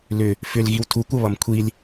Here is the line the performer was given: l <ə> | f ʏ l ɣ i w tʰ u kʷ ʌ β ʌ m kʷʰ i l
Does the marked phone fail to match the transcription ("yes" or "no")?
yes